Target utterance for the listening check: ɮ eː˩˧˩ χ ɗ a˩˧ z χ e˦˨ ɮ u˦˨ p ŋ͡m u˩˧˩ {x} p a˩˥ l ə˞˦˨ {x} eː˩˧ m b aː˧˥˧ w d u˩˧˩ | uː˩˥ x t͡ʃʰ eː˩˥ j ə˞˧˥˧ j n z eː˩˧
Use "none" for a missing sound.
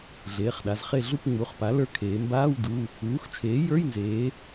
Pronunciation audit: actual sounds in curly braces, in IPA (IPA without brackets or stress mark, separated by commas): χ, kʰ